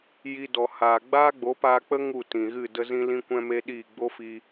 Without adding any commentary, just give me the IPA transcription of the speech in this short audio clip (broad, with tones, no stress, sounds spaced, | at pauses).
j i˧ d ɔ˨ h aː˨ ɡ͡b aː˦ ɡ͡b o˨˦ p aː˧ k͡p ə˦ ŋ u˦˨ t ĩ˨ ɣ ɨ˦˨ d ə˦ z ĩ˦ l ĩ˦ kʷ ɛ̃˦ m e˦ ɗ iː˦˨ ɡ͡b o˦ f i˧